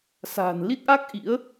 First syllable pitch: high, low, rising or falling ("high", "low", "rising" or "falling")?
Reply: low